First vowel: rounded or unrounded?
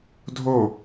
rounded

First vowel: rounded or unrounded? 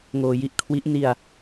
rounded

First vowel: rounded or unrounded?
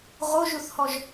rounded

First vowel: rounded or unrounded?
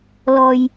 rounded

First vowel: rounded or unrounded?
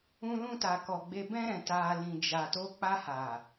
rounded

